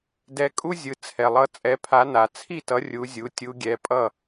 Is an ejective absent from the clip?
no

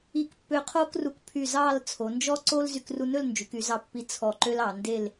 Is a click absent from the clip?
no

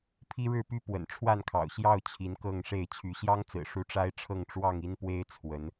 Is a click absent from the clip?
yes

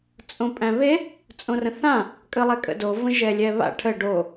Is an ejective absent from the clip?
no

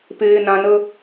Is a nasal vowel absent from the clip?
no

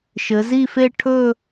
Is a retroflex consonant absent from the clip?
no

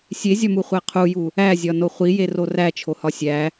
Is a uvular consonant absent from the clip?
no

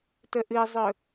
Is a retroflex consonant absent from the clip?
yes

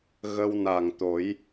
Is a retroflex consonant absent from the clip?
yes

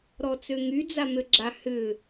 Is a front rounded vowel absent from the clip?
no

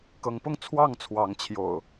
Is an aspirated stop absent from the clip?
no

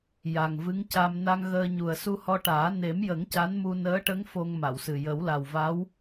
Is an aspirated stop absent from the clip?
yes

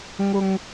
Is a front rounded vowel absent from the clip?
yes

